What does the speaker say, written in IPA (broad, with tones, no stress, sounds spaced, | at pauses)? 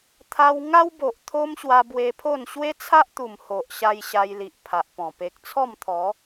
t̪ʰ a˧ w ŋ a˦ w b o˨ ʔ t̪ʰ o˦ m ɕ w a˧ b w e˧ pʰ o˥˧ n ɕ w e˦ t͡sʰ a˦ ʔ t̪ u˨˩ m h o˨ ʔ ɕ a˧ j ɕ a˧ j l i˨ ʔ pʰ a˨ ʔ p ɔ̃˨˩ p e˨ k̚ t͡sʰ ɔ˥˧ m t̪ʰ ɔ˨˦